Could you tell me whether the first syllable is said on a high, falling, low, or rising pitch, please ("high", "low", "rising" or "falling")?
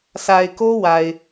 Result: low